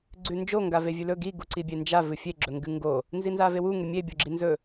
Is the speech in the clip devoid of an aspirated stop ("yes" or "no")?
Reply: yes